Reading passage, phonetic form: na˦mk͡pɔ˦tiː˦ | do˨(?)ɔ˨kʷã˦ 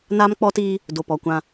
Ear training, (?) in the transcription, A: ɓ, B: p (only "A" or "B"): B